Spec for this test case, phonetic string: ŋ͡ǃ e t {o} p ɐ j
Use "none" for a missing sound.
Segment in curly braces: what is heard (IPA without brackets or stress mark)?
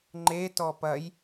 ɔ